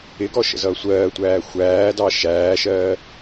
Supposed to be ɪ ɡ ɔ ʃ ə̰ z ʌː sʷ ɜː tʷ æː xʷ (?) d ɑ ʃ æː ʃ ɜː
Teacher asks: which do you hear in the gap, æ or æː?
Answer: æː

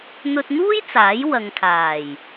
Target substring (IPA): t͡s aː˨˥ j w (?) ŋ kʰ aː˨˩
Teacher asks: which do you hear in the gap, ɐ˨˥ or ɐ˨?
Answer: ɐ˨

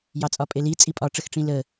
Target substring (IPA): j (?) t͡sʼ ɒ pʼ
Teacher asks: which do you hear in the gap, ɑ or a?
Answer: ɑ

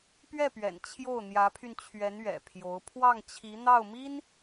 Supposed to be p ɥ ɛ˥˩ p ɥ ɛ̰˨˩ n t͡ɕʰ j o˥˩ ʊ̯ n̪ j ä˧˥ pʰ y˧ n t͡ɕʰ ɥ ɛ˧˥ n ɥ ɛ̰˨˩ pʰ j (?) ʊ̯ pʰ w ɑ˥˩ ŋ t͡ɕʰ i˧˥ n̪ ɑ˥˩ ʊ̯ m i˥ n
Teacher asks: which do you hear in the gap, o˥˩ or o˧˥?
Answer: o˧˥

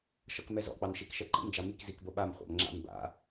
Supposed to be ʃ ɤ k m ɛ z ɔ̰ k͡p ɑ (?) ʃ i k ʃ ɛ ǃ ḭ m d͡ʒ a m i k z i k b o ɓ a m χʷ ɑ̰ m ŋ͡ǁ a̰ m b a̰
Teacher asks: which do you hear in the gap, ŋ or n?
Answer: n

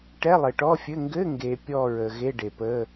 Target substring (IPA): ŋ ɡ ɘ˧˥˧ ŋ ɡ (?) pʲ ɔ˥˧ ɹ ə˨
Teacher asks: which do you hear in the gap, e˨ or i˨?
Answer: e˨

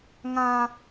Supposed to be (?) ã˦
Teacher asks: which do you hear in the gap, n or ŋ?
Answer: ŋ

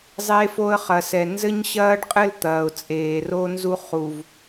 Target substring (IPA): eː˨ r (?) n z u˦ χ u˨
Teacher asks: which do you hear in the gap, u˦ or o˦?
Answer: o˦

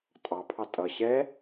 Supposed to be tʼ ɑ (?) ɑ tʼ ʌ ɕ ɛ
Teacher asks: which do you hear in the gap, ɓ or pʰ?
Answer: pʰ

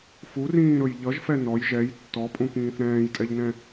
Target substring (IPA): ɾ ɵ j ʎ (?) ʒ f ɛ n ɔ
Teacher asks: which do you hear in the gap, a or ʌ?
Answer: ʌ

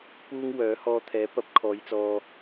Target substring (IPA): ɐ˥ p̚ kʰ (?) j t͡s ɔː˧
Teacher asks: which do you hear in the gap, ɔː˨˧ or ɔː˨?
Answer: ɔː˨˧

